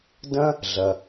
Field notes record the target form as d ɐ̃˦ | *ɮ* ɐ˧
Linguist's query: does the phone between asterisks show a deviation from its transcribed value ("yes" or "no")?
no